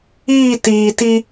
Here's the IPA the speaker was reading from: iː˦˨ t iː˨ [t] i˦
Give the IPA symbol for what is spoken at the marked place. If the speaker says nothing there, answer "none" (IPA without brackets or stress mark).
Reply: t